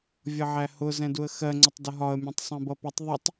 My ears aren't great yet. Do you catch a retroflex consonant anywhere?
no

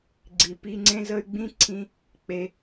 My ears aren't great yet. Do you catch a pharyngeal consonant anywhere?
no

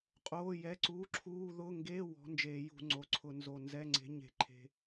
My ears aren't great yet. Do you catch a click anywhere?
yes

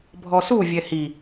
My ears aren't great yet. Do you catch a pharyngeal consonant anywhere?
no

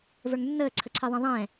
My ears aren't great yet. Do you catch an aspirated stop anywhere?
yes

